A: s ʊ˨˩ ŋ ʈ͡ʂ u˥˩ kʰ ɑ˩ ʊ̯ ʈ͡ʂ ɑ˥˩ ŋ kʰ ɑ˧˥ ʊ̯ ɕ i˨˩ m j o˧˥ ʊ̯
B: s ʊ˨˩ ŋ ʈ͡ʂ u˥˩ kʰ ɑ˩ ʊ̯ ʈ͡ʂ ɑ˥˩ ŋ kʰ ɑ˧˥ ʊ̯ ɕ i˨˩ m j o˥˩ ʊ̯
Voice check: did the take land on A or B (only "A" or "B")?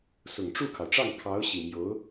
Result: A